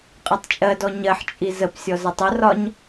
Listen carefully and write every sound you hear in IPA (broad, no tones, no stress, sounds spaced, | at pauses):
qʼ ɛ tˤ t͡ʃʼ ɜ d ɔ ɲ ɜ ħ t͡ʃʼ i z ə p sʲ ɔ z ə tˤ ə r ɒ ɲ